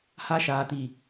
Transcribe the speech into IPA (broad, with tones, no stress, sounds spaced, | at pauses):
h a˦ ʃ aː˨ t i˨